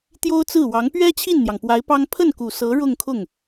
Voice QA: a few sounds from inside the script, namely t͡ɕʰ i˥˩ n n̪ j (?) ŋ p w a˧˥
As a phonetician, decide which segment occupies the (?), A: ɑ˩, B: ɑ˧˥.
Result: A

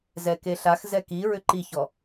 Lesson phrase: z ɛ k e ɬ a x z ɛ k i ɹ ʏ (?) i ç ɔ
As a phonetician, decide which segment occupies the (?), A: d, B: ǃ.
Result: B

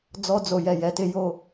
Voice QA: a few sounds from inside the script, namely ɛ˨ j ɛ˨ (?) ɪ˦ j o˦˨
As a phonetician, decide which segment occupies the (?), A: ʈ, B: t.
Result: B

